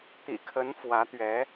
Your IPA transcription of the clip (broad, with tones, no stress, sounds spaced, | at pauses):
t̪ ḭ˨˩ kʰ ə˧˥ n f w ä˧˥ t̪ ɥ ɛ˧˥